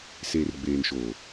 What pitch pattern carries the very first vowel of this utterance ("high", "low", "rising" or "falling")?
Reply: low